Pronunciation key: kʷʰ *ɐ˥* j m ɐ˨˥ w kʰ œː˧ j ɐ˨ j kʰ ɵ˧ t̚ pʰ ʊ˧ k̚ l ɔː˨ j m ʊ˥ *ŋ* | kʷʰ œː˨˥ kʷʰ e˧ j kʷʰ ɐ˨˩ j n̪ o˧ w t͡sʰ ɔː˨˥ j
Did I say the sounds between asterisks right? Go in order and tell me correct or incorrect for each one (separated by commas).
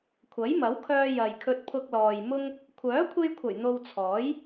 incorrect, correct